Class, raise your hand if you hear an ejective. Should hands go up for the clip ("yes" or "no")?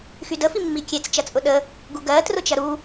yes